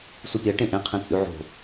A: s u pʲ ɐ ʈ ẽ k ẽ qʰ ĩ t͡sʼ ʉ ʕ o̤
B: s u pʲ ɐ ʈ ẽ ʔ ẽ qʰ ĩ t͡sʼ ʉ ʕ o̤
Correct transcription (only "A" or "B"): B